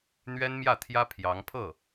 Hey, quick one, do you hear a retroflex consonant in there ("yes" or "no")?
no